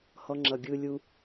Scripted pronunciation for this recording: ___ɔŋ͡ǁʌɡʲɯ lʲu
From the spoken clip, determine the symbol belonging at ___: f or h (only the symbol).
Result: h